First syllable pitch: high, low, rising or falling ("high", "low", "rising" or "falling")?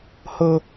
high